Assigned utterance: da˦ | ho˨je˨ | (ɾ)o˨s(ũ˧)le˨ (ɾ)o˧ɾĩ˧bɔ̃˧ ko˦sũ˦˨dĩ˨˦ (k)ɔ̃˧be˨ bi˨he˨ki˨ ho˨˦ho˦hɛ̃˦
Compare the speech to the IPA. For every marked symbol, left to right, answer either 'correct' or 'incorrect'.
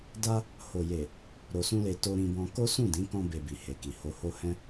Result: correct, correct, incorrect, correct

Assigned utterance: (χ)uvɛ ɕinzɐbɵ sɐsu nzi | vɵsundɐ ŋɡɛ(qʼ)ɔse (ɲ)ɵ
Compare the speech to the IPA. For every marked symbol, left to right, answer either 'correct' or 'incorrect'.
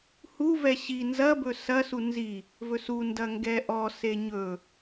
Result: incorrect, incorrect, correct

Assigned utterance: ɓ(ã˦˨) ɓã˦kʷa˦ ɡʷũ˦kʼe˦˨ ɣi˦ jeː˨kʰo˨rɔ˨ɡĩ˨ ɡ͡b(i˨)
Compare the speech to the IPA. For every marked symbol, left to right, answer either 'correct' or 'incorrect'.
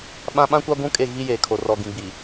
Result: incorrect, correct

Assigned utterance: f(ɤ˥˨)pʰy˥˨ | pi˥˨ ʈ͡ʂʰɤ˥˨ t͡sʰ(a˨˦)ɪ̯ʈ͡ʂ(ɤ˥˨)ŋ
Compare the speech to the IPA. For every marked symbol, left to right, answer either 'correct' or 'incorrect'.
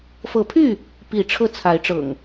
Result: incorrect, correct, incorrect

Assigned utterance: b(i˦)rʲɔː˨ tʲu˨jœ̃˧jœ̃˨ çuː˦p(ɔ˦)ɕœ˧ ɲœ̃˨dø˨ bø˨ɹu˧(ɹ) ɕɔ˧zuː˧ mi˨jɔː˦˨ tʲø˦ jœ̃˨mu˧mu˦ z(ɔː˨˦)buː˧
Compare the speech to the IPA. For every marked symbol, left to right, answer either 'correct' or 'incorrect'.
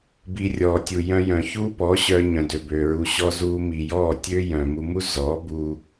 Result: incorrect, incorrect, incorrect, correct

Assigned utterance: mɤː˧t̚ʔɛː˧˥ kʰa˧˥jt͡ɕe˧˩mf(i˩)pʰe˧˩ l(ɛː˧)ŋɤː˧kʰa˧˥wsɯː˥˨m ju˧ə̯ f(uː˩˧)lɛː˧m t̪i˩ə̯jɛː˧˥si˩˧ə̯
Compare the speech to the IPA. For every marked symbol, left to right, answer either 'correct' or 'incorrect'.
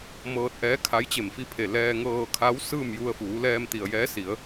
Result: incorrect, correct, correct

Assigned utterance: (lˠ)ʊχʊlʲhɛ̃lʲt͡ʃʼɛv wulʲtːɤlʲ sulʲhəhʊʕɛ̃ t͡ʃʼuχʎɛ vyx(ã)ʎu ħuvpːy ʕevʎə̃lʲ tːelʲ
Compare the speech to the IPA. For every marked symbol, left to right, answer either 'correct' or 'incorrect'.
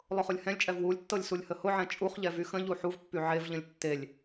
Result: correct, incorrect

